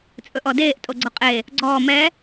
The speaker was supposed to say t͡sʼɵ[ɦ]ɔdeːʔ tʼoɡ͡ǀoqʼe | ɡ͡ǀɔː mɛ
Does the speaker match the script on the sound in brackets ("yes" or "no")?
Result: no